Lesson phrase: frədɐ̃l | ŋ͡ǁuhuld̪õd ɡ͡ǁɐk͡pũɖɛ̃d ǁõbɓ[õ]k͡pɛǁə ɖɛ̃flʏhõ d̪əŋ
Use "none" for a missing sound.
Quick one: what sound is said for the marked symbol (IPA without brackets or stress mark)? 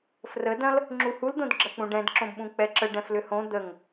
ũ